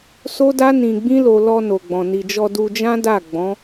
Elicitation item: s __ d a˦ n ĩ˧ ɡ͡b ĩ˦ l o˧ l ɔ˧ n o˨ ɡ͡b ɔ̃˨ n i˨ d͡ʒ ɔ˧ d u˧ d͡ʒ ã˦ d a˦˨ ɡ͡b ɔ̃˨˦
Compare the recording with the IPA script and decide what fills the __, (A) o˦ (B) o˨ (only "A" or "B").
A